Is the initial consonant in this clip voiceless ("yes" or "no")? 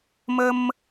no